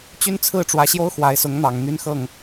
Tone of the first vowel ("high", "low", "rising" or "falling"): high